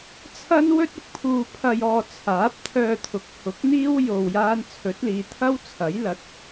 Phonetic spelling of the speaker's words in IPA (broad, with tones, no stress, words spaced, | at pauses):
t͡sʰɐ˥nwɵ˥t̚ʊ˨k̚ pʰuː˧pʰɐ˧jɔː˧ t͡sʰaː˨˥p̚t̪ʰœː˧t̪ʰʊ˨˥k̚hʊ˨˥k̚ n̪iː˥w jo˧wjaː˥n t͡sʰɵ˨˥t̚liː˨˧t̪ʰɐ˥wt͡sʰɐ˨˥j lɐ˨˥t̚